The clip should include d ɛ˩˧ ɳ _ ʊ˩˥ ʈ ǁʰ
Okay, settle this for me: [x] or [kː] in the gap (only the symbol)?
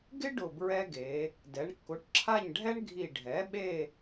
kː